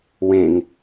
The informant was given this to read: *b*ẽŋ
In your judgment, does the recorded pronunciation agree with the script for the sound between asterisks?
no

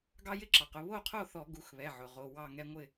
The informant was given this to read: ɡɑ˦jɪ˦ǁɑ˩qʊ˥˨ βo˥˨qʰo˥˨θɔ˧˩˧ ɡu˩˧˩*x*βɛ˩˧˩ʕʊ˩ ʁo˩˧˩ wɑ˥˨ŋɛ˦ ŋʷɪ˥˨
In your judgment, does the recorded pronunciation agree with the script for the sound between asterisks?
yes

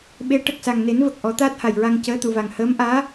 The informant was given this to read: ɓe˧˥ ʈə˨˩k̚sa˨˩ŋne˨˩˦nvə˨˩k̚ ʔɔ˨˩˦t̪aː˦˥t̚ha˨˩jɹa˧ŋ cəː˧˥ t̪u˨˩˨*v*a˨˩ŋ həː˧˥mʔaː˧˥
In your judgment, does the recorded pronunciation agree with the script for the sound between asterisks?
yes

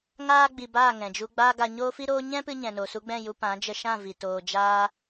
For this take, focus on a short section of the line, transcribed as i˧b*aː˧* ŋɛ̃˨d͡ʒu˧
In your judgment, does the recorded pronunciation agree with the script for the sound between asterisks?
no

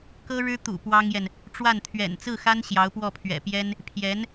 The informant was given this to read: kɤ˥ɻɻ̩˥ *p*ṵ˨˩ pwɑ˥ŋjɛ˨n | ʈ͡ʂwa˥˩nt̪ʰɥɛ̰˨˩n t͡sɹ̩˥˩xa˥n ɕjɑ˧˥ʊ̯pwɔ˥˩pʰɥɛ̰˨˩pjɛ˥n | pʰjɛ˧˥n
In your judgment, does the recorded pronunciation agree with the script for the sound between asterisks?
no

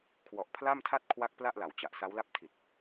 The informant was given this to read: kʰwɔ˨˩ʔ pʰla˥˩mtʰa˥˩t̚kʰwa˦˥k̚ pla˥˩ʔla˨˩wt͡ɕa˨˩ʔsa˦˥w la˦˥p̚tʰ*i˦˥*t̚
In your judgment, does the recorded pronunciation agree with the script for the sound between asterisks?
no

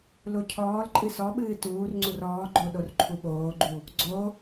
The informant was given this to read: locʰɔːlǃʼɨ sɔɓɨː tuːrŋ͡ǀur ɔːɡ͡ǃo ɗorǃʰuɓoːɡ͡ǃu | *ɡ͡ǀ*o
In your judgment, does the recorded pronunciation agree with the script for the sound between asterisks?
yes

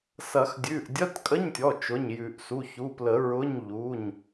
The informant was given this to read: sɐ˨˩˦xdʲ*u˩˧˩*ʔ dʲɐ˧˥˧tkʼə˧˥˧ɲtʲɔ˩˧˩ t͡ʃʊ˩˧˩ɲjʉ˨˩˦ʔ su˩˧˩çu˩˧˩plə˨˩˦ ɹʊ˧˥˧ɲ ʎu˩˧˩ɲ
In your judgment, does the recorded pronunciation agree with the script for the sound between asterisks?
no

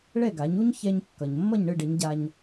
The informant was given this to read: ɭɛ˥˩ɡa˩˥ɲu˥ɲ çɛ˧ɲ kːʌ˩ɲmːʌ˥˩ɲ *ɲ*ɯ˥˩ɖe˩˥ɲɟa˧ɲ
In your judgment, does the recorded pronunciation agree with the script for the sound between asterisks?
no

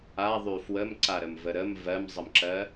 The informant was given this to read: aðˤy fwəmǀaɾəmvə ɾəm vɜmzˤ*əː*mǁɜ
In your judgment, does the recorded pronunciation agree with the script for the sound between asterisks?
no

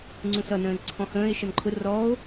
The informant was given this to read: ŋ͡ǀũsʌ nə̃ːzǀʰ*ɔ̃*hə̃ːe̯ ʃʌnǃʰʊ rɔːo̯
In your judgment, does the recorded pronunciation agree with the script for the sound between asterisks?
yes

